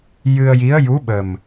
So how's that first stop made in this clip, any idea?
implosive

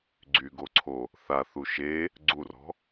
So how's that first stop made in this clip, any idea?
click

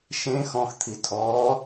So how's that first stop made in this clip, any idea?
aspirated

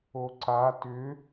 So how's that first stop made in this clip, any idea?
click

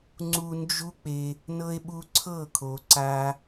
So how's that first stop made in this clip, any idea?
click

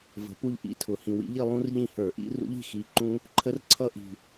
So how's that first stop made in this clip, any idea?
plain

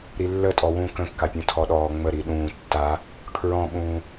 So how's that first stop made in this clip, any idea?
ejective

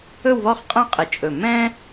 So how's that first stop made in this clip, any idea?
ejective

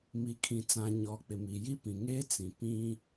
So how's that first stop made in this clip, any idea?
aspirated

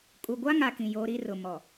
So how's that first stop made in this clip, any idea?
ejective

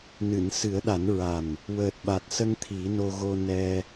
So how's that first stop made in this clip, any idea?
implosive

